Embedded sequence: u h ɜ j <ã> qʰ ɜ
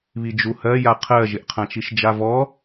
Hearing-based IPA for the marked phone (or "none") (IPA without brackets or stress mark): a